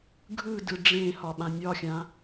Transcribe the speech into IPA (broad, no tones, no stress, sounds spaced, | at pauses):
ɡʱ ɯ d ɯ ɖ͡ʐ ẽ h ɒ ɓ ã nʲ ɒ xʲ ã